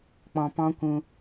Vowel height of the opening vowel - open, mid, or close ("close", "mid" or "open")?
mid